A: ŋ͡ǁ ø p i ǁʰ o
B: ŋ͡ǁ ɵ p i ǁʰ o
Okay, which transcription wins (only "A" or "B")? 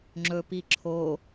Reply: B